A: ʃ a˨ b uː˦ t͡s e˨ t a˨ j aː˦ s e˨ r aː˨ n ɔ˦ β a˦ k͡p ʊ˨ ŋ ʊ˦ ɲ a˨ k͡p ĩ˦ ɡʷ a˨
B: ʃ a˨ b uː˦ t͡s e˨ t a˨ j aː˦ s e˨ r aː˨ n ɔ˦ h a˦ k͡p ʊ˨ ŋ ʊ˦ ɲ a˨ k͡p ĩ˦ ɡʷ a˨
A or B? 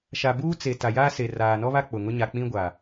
A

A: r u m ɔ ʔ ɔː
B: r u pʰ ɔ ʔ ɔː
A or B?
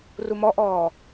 A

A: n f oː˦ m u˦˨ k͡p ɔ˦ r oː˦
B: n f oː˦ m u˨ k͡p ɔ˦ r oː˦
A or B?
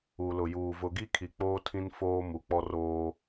B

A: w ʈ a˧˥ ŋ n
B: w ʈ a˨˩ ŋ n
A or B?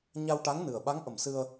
A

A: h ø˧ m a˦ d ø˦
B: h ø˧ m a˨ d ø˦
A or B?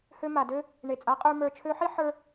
B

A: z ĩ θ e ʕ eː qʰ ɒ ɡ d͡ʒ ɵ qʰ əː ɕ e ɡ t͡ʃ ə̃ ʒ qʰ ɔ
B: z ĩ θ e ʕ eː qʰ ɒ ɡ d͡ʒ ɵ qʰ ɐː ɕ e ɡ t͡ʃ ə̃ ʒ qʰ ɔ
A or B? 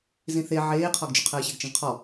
A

